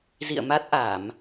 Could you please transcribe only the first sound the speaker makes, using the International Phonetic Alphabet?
z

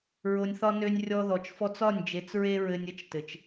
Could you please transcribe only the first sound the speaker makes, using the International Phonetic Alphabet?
ɹ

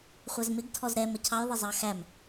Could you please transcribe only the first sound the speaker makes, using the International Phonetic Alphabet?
χʷ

